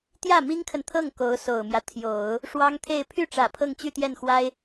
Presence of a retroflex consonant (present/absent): present